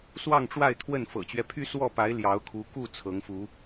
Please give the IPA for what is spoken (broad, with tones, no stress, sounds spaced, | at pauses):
s w ɑ˥˨ ŋ ʈ͡ʂ w a˥˨ ɪ̯ t̪ʰ w ə˥˨ n f ɤ̰˨˩ t͡ɕ ɥ ɛ˦ pʰ y˦ s w ɔ˥˨ p a˨˦ ɪ̯ l j ɑ˨˦ ʊ̯ kʰ u˨˦ k u˥˨ t͡sʰ ɤ˨˦ ŋ f u˨˦